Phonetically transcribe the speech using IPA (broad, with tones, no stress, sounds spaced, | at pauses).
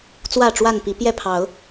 t͡s w ä˥˨ ʈ͡ʂ w a˥˨ n p i˨˦ p j ɛ˥˨ pʰ ɑ˨˦ ʊ̯